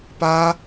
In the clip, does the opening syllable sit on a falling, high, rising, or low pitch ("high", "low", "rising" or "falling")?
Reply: high